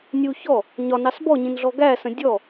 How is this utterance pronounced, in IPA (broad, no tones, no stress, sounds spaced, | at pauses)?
nʲ u ç ɔ | ɲ ɒ n ɑ s b ɔ ɲ ĩ n ɮ ɔ ɡ æ s ə̃ dʲ ɔ